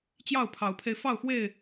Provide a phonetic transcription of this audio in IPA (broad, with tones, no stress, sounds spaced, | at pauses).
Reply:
t͡ɕ j ɑ˥˨ ʊ̯ pʰ ɑ˨˦ ʊ̯ pʰ e˧ ɪ̯ f ɑ˥˨ ʊ̯ x w e˥˨ ɪ̯